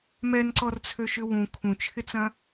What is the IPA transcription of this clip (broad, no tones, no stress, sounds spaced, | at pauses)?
m ɛ n ǀ ɔ r t͡sʰ ø ʃ ʏ w ũ kʰ ũ t͡ʃʰ ɪ t͡s ɐ̃